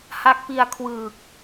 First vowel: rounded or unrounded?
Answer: unrounded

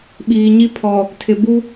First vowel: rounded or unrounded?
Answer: unrounded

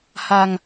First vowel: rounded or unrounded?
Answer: unrounded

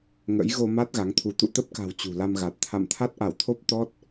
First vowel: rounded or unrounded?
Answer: unrounded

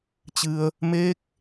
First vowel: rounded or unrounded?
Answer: unrounded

